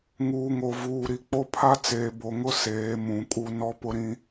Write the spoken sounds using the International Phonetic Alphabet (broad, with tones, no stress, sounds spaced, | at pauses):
ŋ uː˨ ŋ o˨ v uː˨ ɾ i˨ k͡p o˦ pʰ a˦ t͡s eː˨ b o˨ ŋ ʊ˦ s eː˨˦ m ũ˨ kʼ u˦ n ɔ˦ p ʊ˦ ɾ ĩ˦